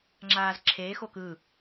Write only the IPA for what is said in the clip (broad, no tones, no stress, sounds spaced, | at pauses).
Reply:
ŋ͡ǁ aː z ǁʰ eː x o k ɯ